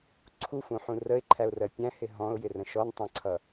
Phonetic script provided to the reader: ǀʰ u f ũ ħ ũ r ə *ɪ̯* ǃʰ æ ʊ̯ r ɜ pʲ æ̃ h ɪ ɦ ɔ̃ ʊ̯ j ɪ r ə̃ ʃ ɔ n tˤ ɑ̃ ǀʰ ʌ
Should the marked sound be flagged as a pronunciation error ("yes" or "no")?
no